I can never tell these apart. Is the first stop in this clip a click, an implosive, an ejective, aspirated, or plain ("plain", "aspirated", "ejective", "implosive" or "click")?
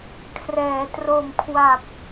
aspirated